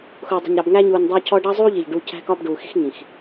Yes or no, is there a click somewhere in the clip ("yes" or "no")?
no